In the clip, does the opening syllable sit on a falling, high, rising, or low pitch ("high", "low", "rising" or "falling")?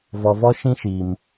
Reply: low